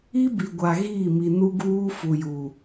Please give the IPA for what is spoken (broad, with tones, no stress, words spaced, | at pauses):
i˦bi˨ɡʷa˨ ɣiː˦˨mi˨ nu˦ɡuː˦ fu˨ju˨